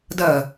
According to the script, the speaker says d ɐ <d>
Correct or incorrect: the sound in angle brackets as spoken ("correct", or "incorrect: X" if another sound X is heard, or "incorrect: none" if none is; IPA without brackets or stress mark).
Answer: incorrect: none